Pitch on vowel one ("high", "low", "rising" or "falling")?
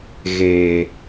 low